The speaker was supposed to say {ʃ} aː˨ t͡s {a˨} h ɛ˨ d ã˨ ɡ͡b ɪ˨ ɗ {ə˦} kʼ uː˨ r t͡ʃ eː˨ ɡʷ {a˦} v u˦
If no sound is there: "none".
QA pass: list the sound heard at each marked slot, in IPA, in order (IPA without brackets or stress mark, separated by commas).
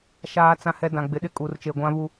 ʃ, ã˨, ɪ˦, ã˦